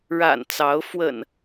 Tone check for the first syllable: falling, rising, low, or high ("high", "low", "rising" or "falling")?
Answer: low